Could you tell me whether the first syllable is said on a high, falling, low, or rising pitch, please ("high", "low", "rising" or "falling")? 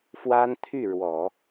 high